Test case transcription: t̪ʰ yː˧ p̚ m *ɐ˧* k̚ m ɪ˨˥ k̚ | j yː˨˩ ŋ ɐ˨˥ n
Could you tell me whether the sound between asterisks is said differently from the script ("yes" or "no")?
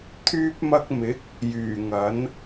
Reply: no